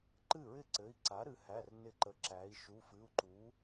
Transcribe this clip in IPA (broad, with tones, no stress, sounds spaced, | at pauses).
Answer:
ǃ ɨ˥˩ ɹ ɪ˥˩ ǀ ɘ˩˧˩ i̯ ǀ a˩˥ ɾ ɨ˩˧ h æ˩˧˩ r n ɪ˧˩ ǃ ə˩˥ ǁ æ˩˧ i̯ ʃ u˩˧˩ f ɨ˩˧˩ u̯ ǃ u˩˥